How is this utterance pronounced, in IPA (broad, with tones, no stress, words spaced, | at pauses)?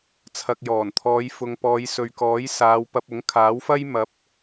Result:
t͡sʰɐ˨k̚jɔː˨˩nt̪ʰɔː˨˧j fʊ˨ŋ pɔː˨˧jsɵ˨ɥkɔː˨˥jsaː˨˧w pɐ˧p̚ʊ˨˥ŋkʰaː˨˥wfɐ˥j mɐ˨˥p̚